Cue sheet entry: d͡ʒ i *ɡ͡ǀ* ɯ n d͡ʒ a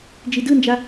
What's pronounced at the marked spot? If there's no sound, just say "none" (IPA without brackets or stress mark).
d